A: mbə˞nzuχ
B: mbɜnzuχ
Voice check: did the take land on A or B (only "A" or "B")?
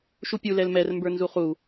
A